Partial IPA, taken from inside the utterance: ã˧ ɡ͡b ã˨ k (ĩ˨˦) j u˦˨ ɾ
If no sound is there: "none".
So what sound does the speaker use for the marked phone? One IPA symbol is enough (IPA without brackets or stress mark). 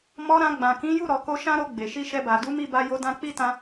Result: ĩ˨˦